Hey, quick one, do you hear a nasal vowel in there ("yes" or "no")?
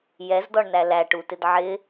no